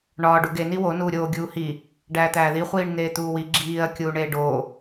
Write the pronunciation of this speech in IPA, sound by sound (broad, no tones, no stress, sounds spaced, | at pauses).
ɳ ɒː ɖ u ɡ e n i w o n uː ɾʲ oː ɡʲ uː h i | ɖ æː t̪ æː ð i χʷ iː ɳ n̪ eː t̪ uː w i ɡ͡ǁ iː ɐ̯ kʲ uː ɳ eː ɖ oː